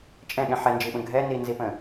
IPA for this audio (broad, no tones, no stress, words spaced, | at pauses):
t͡ʃʼɛ̃ɠɛ̃ ħɛnd͡ʒiɓə̃ ɡʱɛ ninzipə̃